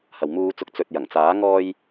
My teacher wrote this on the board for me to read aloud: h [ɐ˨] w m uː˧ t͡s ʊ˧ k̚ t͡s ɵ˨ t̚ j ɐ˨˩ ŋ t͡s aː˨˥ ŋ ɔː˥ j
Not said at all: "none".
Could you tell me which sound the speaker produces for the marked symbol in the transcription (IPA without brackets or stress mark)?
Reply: ɐ˨